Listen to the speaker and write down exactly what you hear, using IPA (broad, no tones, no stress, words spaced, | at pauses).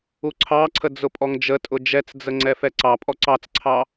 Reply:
uǀʰɑǀʰə d͡zʊpʼɔŋd͡ʒətʼʊ d͡ʒɛt͡sd͡zə ŋ͡ǀɛfɛǀɑpʼɔ ǀɑt͡sǀʰɑ